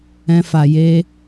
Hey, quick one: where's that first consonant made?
lips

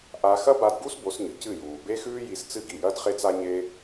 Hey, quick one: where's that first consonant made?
throat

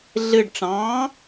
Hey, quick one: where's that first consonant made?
tongue tip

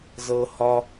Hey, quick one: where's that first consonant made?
tongue tip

